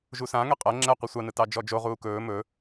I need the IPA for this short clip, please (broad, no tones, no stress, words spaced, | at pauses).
ʒusãŋɛ qʼɜ ŋ͡ǁɛ qʷisʷɑnɯ tɑd͡ʒɔd͡ʒoʁuː kɵː mɵ